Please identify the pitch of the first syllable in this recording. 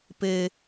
high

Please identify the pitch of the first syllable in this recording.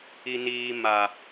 high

